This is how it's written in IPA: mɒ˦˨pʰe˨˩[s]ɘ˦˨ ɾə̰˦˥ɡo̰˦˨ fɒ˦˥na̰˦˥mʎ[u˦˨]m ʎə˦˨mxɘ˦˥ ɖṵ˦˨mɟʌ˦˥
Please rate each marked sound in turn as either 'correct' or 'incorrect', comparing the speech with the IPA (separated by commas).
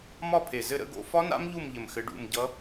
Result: incorrect, correct